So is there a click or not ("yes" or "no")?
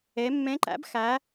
yes